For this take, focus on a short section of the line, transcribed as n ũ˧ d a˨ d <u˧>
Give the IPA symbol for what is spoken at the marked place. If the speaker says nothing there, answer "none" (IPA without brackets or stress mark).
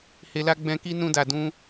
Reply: ũ˧